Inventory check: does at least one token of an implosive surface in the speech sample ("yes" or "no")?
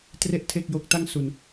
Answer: no